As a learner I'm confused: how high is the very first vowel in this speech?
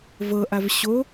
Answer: mid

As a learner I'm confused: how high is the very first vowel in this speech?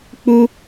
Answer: high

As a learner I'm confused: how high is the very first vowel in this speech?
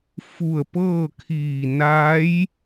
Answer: high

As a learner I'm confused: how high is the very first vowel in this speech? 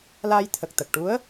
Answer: low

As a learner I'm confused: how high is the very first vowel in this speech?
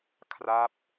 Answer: low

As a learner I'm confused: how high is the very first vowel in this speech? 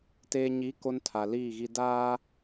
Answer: mid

